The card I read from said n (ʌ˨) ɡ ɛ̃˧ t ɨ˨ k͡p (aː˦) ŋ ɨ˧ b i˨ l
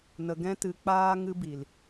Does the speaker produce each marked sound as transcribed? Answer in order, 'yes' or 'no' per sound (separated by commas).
no, yes